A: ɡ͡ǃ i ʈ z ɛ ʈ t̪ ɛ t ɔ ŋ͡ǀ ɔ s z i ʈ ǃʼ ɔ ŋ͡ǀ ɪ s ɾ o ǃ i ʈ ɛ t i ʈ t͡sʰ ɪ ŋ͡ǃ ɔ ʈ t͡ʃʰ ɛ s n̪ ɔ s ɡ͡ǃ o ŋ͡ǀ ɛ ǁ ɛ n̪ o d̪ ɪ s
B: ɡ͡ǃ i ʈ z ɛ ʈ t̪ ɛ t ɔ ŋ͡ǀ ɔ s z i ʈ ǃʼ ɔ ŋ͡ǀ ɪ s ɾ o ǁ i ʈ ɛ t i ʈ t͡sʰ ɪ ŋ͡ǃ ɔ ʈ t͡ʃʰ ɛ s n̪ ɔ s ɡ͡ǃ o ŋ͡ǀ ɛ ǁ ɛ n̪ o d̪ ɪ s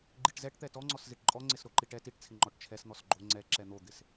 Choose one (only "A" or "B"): A